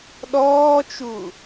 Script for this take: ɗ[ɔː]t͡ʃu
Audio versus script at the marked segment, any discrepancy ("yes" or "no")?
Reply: no